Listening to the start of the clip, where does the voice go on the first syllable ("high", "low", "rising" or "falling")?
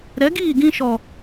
rising